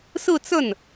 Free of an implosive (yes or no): yes